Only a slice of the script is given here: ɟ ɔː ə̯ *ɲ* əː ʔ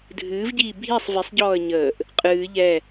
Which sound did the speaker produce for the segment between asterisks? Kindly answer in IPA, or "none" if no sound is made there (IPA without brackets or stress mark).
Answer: ɲ